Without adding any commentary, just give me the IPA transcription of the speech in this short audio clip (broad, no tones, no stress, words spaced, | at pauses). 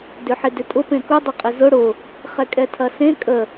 dʏħɪdʏtʼʊ pẽkʊ dˤʊqʼɪzʊ ɽʊ | χɛkʼɛtʰɐsẽ kʼə